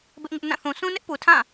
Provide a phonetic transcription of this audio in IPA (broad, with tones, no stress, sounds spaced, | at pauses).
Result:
b ɪ˦ ʔ ŋ ɪ˦ ʔ n ã˦˨ θ ũ˨ s ũ˦ n ɪ˦ ʔ p u˨ tʰ ã˦˨